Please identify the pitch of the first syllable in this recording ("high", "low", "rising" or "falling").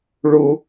high